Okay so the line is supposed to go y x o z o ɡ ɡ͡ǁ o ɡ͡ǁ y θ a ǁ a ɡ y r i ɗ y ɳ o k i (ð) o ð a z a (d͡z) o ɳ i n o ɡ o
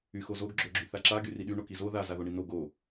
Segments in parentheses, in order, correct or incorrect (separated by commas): incorrect, incorrect